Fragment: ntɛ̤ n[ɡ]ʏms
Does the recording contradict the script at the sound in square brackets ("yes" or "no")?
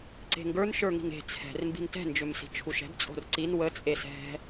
yes